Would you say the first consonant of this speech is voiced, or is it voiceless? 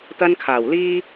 voiceless